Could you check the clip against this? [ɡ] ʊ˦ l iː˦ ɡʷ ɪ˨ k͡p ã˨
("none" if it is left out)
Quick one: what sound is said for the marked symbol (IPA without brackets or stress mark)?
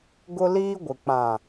ɡ